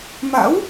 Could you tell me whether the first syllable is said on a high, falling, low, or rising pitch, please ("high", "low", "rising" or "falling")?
rising